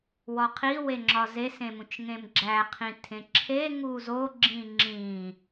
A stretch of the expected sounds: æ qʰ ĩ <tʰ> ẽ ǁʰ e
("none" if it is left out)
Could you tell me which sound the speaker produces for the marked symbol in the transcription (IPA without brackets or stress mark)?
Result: tʰ